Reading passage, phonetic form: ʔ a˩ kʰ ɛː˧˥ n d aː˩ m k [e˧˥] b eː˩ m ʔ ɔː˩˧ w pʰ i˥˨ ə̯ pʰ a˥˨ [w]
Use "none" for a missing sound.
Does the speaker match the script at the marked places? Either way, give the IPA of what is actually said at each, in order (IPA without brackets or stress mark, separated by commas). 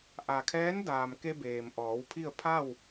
e˧, w